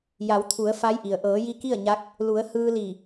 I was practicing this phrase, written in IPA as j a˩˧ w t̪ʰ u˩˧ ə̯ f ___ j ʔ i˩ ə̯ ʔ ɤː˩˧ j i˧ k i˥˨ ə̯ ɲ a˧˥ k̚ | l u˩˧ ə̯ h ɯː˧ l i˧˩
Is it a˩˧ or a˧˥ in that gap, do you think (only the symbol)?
a˧˥